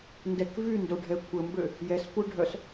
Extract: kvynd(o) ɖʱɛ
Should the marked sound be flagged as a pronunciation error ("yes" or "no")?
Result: no